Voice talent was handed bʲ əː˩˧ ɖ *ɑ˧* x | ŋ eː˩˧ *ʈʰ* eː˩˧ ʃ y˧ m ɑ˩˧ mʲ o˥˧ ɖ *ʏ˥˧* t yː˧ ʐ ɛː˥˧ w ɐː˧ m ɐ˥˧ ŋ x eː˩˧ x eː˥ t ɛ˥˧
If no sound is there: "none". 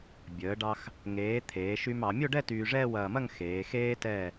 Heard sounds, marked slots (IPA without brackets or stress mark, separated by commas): ɑ˧, t̪ʰ, ɛ˥˧